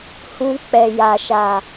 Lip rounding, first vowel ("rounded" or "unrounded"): rounded